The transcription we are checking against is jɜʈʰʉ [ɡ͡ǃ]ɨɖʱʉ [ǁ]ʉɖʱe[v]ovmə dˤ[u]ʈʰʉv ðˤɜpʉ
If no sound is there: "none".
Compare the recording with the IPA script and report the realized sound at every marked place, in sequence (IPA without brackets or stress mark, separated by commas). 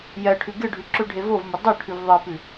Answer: ɡ, ǁ, v, o